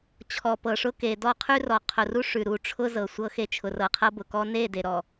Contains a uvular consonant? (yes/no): yes